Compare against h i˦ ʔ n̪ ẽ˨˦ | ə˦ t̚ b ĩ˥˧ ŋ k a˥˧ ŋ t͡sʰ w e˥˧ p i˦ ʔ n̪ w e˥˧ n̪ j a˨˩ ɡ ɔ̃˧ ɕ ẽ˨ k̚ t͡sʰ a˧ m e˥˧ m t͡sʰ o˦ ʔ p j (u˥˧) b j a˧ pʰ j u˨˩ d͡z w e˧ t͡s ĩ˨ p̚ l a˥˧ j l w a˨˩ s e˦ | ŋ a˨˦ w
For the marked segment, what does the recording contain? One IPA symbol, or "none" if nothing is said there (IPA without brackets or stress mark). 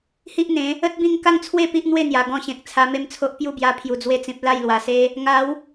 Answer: u˥˧